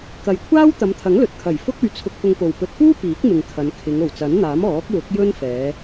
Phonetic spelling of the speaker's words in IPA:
k ɐ˨ j kʷʰ aː˥ w t̪ ɐ˨˧ m t̪ʰ ɐ˨˥ ŋ l ɵ˨ t̚ kʰ ɐ˨˩ j f ʊ˥ k̚ ɵ˧ ɥ t͡sʰ ʊ˧ k̚ f ʊ˧ ŋ p o˨ w p ɵ˨ t̚ f uː˥ p iː˨˥ k̚ m ɪ˨ ŋ kʰ ɐ˨˧ n kʰ ɪ˨˧ ŋ o˨˩ w t͡s ɐ˨˥ n n̪ aː˨˥ m ɔː˨˥ k̚ w ʊ˨˥ k̚ j ɵ˥ n f ɛː˨˧

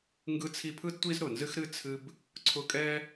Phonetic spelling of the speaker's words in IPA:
ŋ ɡ ɯ˦ t͡sʰ i˦ pʰ ɯ˥ d tʷ i˥ z ɾ ʊ˩ n z ɨ˥ x ɾ ɨ˥ t͡sʰ ɨ˦ b | ǀʰ ʊ˦ kʼ ɛ˥

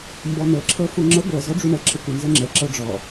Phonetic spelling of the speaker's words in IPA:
m b ɔ n̪ ɤ ǁʰ ɤ f u ŋ͡ǁ ə ɡʷ ɤ z ɔ ɖ͡ʐ u ɳ ə ǁʰ ə kʷ ə n z ə ŋ͡ǁ ə ǁ ɤ ɖ͡ʐ ɔ

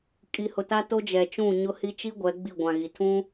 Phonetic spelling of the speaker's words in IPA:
kʼ i˨ h ʊ˨ t a˦ t o˦ d͡ʒ ɛ˨ t͡ʃ ũ˦˨ ɲ ʊ˦ h i˦ t͡ʃ i˦ ɡʷ ɛ˨˦ ɡ͡b i˦˨ ɡʷ ã˨ ɣ i˨ tʰ ũ˦

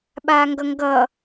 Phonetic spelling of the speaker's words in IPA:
ɓ aː ŋ ɡ ʌ ŋ ɡ ʌ

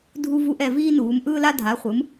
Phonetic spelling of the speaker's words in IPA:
dʱ u˦ v u˦ ʔ ɛ˩˧ v iː˦ n uː˩˧ m ʔ ɯː˦ l a˦ dʱ a˩˧ χʷ ɯ˩˧ m

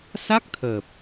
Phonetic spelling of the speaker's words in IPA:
s a˦˥ k̚ t̪ʰ əː˨˩ p̚

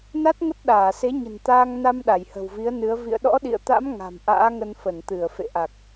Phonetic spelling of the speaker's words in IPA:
n a˦˥ t̚ ŋ ə˦˥ t̚ ɗ aː˧˩ s e˨˦ ɲ ə̤˨˩ n t̪ aː˧ ŋ n a˧ m ɗ a˧˩ j h ə̤˨˩ w v i˨˦ ə̯ n ɨ˨˦ ə̯ v ḭ˧˨ ə̯ ɗ ɔ̰˧˥ ɗ ḭ˧˨ ə̯ t̪ a̰˧˥ m ŋ a̤˨˩ m ʔ a̰ː˧˥ ŋ ə˧ n f ə˧˩ n t̪ ɨ˧˩ ə̯ f ḛ˧˨ ʔ a˨˩ k̚

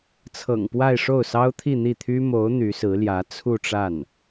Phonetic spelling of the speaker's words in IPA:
t͡sʰ ɤ̰˨˩ ŋ p w a˥˧ ɪ̯ ʂ o˥˩ ʊ̯ s ɑ˥ ʊ̯ t̪ʰ i˥˧ n̪ i˥˩ t̪ʰ y˥ m o˧˥ ʊ̯ n̪ y˧˥ s ɹ̩˧˥ l j ä˧˥ t͡sʰ u˥˧ ʈ͡ʂ a˥˩ n

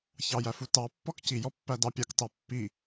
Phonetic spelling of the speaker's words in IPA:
ç ɑ j æ f u t ɑ pː ɔ k c i j ɔ pː æ d ɑ pʲ a k t ɑ pː i

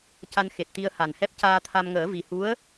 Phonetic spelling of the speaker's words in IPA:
c a˧ n x e˨˩ t̚ t̪ i˧ ə̯ h a˨˩ n h ɛ˦˥ p̚ c aː˧ t̪ʰ a˧ m ŋ əː˨˩˦ v i˨˩ h u˧˥ ə̯

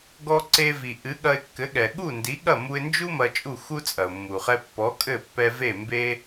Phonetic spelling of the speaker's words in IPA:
ɡ ɔ˧ ǀ e˧ v i˩ ʔ ɨ˩˥ ɠ ɐ˧ ɪ̯ kː ɘ˩˥ ɠ ɛ˩ ɠ u˥˩ n d i˩˥ ɠ ɐ˥˩ m u˧ ɪ̯ n d͡ʒ u˥ m ɐ˧ t͡ʃʼ u˥˩ x u˥ t͡sʼ ɐ˩ ʊ̯ mː u˩ χ ɛ˧ pː ɔ˩˥ kʼ ɘ˥˩ pː ɛ˧ v e˥˩ m b e˥

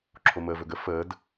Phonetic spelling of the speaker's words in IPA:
ǁʰ o m əː v ɵ ɡ ə f əː d

